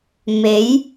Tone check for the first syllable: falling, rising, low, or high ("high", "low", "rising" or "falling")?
rising